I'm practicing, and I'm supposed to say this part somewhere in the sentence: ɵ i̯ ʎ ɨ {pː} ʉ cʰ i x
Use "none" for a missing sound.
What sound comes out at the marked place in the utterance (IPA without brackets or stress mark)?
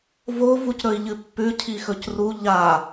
pː